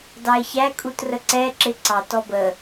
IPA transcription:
dɑe̯çæ kʼutrəǀɛ ǁɪǀɑt ɔbə

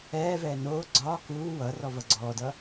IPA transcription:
ɛːvɛː noː ɡ͡ǀɒː kuː wʌrɔ vʌɡ͡ǀɔːdʌ

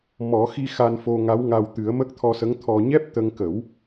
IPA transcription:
mɔ˨˩˦xi˧ xa˧nfo˧ŋa˧˥wŋa˧w t̪ɨ˨˩˦ə̯mə˦˥k̚t̪ʰɔ˧sə˧˥ŋ t̪ʰɔ˧ ɲɛ˦˥p̚t̪ə˧ŋkə˨˩˦w

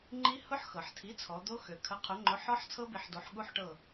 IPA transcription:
ŋ͡ǃi˦˥ hʊ˦˥ħxɤ˩ħtʰi˩˥t͡sʰɔ˩˧ d̪o˦˥ xø˩kʰə˩˥ qʰʊ˩˥ŋ͡ǃʊ˩˥ ħɔ˦˥ħ t͡sʰɤ˦˥bi˩˧ħdo˩˧ħ ɠu˦˥ħʈɤ˦˨

